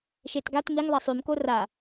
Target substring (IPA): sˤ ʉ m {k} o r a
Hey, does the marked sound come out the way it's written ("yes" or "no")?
yes